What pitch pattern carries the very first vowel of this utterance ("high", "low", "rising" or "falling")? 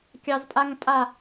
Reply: low